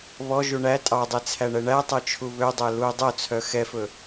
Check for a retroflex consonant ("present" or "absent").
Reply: present